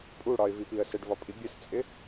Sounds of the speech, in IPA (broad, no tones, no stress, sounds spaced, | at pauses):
pʼ u ɽ ɒ ɪ̯ v i p i ə̯ s ɘ ɖ v ɒ pʼ i bʲ ɘ s t͡sʼ ɪ